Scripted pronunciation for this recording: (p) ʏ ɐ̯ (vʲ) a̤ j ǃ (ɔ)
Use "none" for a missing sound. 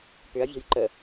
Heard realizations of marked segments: p, vʲ, ə

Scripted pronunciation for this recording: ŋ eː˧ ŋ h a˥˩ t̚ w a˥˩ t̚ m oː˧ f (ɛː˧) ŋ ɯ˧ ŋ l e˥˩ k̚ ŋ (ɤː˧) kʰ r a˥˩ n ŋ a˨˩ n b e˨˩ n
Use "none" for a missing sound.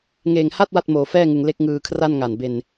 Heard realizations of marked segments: ɛː˥˩, ɯː˧

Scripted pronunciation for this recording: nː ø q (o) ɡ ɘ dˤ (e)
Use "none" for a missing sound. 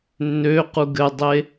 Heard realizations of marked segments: u, e

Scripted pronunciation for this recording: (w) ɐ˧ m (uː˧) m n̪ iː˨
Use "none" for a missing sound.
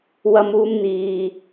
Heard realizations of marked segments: w, uː˧

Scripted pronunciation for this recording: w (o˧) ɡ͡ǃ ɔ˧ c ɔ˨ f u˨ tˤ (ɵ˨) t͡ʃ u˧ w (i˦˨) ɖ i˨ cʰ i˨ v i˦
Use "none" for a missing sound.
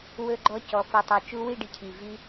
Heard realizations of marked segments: ɵ˧, ɵ˨, i˦˨

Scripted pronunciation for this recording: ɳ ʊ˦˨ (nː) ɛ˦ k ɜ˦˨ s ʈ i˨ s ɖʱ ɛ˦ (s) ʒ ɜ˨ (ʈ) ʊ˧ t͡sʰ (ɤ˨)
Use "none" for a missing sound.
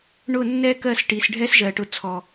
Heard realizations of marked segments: nː, s, ʈ, ɔ˨

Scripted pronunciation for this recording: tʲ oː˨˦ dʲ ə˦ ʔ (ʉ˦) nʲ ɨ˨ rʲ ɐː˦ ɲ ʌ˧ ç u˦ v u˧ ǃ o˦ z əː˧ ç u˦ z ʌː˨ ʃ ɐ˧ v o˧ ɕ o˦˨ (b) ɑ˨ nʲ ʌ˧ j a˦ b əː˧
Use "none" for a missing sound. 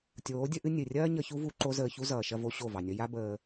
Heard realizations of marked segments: ɨ˦, v

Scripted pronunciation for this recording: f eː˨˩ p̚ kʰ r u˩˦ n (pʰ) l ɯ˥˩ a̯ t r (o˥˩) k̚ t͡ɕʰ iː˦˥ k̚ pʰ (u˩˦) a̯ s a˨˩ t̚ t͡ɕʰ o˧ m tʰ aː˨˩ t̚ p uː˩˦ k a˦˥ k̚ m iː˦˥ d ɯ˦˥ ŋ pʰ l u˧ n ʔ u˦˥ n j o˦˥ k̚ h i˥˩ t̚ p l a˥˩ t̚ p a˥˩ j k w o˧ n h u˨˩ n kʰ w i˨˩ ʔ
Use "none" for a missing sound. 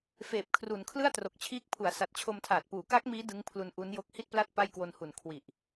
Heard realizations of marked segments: kʰ, o˨˩, u˩˦

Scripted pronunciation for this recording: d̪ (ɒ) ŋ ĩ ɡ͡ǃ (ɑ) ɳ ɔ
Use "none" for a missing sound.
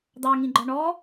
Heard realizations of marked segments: ɑ, ɒ

